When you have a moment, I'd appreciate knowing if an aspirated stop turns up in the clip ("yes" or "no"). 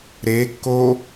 no